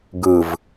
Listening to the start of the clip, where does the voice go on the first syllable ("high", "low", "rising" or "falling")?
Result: low